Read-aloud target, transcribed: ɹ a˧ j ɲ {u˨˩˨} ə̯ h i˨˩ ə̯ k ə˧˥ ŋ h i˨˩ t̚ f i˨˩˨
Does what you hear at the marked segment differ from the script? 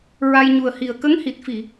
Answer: yes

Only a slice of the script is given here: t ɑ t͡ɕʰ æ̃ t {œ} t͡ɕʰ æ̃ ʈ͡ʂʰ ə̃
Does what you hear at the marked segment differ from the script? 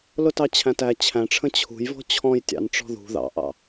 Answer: yes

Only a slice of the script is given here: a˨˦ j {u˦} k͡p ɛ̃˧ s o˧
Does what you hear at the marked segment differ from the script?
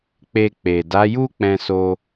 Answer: no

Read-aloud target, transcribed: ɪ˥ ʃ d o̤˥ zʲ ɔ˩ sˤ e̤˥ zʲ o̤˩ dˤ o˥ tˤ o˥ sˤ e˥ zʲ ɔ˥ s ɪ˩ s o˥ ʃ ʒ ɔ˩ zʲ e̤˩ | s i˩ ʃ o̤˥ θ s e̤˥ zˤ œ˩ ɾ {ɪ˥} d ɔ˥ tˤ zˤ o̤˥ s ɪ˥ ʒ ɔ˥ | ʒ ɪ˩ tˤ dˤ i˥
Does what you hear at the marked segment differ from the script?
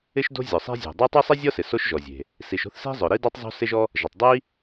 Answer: yes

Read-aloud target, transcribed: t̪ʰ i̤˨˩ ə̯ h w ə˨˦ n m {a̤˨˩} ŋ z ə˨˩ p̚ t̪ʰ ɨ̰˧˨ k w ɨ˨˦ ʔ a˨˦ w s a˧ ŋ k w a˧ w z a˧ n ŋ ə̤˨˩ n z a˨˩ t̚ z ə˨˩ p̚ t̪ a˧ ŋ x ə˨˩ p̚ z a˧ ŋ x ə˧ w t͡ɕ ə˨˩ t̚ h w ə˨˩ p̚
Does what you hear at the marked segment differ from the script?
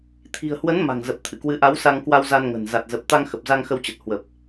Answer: no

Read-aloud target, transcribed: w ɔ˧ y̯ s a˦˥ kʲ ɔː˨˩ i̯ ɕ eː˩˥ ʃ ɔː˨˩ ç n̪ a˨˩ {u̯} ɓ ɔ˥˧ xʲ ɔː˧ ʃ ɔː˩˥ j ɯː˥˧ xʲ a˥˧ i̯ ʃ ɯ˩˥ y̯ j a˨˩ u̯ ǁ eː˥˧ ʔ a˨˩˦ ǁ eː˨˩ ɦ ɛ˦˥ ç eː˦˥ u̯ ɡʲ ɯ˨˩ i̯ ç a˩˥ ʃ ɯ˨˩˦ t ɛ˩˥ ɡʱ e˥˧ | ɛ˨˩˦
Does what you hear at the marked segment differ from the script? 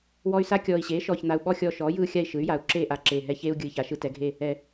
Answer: no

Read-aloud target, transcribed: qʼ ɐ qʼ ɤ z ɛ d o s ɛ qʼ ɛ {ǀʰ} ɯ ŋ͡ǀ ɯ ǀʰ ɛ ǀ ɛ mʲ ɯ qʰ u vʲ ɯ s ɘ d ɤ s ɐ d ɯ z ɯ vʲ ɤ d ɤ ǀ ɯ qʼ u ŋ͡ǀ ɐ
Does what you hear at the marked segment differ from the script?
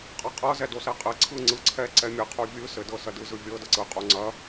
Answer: no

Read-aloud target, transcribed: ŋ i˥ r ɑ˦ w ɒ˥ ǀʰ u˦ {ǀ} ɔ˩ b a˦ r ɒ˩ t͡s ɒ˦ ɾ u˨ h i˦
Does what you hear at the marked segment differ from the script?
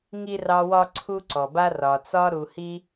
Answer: no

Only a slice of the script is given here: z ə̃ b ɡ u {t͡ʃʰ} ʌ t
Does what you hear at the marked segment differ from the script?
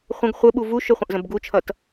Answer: no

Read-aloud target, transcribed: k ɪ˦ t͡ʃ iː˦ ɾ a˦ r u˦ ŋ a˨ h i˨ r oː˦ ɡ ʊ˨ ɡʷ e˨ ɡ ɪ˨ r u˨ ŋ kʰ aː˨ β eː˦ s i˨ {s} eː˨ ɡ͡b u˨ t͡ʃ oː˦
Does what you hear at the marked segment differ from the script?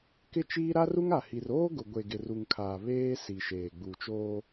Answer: yes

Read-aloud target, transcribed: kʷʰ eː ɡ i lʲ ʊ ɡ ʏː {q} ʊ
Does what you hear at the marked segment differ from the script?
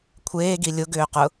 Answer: no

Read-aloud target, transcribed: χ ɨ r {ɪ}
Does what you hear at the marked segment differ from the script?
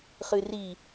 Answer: yes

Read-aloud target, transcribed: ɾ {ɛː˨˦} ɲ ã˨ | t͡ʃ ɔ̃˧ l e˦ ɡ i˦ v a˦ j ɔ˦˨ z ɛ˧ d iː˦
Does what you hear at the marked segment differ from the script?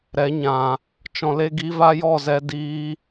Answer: yes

